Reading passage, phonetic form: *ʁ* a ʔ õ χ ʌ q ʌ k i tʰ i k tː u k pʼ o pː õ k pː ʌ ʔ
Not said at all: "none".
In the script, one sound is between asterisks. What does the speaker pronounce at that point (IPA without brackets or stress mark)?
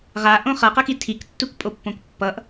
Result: ʁ